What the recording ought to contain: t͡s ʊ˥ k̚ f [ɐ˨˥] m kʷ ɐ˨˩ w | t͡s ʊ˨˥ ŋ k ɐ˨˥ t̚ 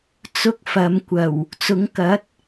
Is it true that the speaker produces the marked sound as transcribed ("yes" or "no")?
no